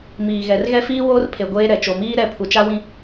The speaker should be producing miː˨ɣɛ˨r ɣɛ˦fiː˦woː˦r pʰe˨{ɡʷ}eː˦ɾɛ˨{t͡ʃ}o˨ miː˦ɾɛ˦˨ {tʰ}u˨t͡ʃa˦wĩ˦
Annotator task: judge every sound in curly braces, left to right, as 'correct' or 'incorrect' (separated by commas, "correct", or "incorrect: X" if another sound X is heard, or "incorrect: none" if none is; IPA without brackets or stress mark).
correct, correct, incorrect: pʰ